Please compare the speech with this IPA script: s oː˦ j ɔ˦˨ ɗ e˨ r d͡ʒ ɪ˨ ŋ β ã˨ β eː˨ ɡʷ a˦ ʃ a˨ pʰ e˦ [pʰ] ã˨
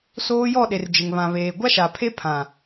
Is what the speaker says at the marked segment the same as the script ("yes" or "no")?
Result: yes